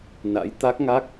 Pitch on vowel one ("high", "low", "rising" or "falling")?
rising